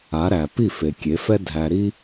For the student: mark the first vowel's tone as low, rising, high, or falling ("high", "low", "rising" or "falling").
rising